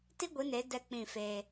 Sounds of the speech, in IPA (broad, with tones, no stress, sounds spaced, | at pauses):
t i˦ ɡʷ i˨˦ n e˨˦ d ɛ˦ k͡p ĩ˦˨ f e˦